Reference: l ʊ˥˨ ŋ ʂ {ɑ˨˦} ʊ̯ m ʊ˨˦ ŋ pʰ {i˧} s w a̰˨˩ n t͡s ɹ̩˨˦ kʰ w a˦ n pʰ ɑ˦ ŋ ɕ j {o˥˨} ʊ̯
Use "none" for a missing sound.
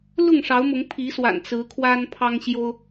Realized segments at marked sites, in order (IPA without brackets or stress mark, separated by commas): ɑ˨˦, i˨˦, o˦